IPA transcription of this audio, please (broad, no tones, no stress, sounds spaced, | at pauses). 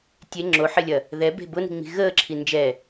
tʲ e ŋ͡ǁ o ħ ɪ lʲ ɐ | ð ɛ b e̤ b ʊ n i̤ ŋ͡m i̤ ɣ əː ǁʰ i n d͡ʒ ɛ